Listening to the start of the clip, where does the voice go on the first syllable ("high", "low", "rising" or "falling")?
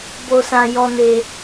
high